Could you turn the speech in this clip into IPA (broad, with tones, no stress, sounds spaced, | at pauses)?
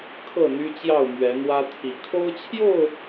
kʰ ɤ˥˨ n̪ y˦ t͡ɕ j ɑ˥˨ ʊ̯ m ɥ ɛ˨˦ n̪ w ä˦ t̪ʰ i˨˦ kʰ o˦ ʊ̯ t͡ɕʰ j o˥˨ ʊ̯